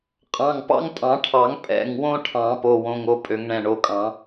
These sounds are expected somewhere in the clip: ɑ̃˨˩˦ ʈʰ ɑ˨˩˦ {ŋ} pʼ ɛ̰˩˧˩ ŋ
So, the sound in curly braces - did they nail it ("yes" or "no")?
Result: yes